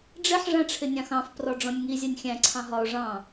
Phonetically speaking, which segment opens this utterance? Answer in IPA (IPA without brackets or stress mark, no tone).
ɖ͡ʐ